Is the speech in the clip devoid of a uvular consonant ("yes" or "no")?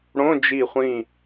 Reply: no